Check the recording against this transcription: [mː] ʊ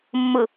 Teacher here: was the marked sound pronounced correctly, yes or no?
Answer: yes